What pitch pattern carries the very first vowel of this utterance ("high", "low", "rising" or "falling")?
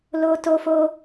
high